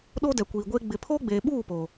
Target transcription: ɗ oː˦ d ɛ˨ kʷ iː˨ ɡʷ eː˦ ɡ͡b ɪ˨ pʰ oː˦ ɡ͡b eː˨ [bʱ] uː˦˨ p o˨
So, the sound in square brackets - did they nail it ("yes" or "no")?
no